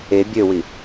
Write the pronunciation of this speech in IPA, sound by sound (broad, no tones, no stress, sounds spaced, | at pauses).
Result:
e bʲ ø w i